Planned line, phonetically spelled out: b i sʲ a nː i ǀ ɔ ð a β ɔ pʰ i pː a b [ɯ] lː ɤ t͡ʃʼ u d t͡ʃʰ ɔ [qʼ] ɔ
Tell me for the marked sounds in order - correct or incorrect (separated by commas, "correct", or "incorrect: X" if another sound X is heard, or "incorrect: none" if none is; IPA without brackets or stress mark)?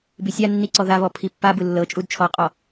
correct, correct